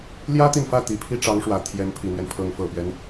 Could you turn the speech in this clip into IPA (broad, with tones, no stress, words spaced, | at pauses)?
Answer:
ljä˥t̪i˨nfä˥˩ t̪i˨˩pʰi˥˩ʈ͡ʂɑ˧˥ŋʂwä˨˩ t̪ʰjɛ˧˥npʰi˨˩n̪ɥɛ˦npʰɤ˧˥ŋ fɤ˨˩pɥɛ˦n